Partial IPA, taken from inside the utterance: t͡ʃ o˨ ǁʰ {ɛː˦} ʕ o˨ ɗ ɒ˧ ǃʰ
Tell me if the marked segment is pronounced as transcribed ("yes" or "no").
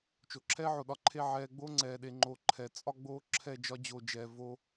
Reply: yes